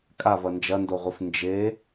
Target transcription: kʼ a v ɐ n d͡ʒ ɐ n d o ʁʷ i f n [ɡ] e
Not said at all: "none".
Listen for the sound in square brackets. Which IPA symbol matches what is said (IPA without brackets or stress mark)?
d͡ʒ